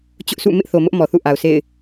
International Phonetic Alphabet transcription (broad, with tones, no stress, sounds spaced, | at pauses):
t͡ɕ ʊ˦ ʔ sʰ ṵ˦˨ m ɪ˦ ʔ θ o˨ m ʊ˦ ʔ m ɔ˨ θ ṵ˦˨ ʔ a˨ ʊ̯ s ḛ˦˨ ɪ̯